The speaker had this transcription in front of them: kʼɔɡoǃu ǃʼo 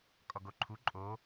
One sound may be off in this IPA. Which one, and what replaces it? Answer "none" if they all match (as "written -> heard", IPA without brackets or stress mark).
ǃ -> ǃʰ